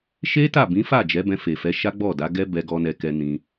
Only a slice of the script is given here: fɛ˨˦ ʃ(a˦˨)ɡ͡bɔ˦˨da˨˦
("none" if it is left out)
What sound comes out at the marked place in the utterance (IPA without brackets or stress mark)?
a˦